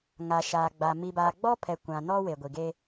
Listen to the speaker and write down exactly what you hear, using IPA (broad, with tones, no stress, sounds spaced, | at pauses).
ŋ a˨ ʃ aː˨ ɡ͡b a˨ m i˨ b aː˨ ɡ͡b ɔ˦ pʰ ɛ˨ kʷ ã˨ n ɔ˦ w e˨ ɡʷ i˨ ɡ e˦